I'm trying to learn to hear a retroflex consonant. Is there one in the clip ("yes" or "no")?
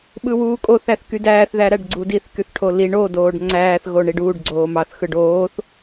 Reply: yes